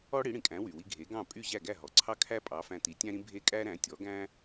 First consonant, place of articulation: retroflex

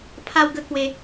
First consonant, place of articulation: labial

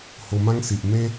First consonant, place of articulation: glottal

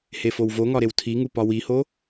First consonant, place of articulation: glottal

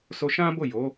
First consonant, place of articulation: alveolar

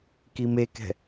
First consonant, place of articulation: velar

